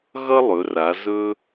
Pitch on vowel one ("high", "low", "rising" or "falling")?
high